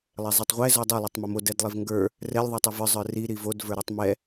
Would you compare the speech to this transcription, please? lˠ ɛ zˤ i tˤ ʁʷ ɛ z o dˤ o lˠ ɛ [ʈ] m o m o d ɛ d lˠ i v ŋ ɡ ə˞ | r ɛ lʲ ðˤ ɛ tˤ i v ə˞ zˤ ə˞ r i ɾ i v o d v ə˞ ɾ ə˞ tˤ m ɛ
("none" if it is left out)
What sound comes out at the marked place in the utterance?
tˤ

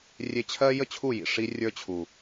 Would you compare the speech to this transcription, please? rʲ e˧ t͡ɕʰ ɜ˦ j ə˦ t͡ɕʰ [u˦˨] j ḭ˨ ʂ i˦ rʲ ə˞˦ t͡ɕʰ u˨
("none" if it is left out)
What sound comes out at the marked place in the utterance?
u˦˨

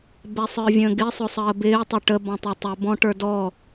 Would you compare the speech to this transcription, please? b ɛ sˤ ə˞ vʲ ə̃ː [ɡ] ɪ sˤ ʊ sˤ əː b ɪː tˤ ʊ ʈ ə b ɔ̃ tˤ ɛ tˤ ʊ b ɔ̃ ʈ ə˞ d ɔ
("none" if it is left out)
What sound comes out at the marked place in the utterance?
ɡ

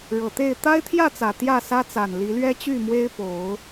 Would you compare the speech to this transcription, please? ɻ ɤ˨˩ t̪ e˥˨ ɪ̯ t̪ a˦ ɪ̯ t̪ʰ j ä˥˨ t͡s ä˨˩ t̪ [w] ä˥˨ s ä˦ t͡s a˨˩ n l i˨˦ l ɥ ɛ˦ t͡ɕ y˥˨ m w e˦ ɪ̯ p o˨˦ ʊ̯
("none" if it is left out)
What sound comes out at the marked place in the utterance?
j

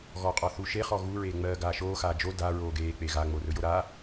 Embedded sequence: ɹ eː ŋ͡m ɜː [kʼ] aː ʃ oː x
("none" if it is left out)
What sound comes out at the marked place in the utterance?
ɡ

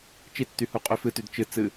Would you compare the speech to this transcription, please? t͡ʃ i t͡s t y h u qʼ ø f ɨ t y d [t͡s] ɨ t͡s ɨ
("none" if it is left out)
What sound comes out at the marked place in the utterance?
t͡ʃ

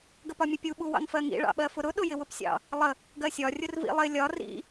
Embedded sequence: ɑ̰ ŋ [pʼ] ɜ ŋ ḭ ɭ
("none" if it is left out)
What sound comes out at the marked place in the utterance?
f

